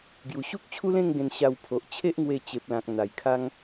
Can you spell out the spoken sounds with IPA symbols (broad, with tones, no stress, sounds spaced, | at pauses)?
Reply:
ɡ j u˨˩ ɕ u˦ k̚ t͡ɕʰ u˦ l ẽ˥˧ ŋ ɡ ẽ˧ n ɕ a˧ w pʰ o˨ ʔ t͡ɕʰ e˦ ʔ ŋ w e˧ t͡ɕ e˨ p̚ l ã˨ k̚ n̪ a˨˩ j kʰ a˦ ŋ